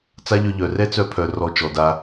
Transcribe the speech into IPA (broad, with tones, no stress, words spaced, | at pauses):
t͡sa˦ʎœ˧ʎœ˨ rɛ˦t͡sœ˧pʰœ˨ rɔ˧t͡ʃɔ˨da˧